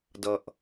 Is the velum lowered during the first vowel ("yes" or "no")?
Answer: no